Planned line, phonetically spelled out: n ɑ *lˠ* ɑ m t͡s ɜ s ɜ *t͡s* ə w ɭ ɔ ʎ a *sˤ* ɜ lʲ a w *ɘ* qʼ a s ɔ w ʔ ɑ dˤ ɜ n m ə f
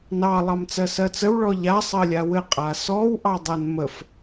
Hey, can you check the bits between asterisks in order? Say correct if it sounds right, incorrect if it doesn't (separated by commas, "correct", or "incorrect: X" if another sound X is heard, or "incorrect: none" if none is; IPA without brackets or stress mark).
correct, correct, correct, correct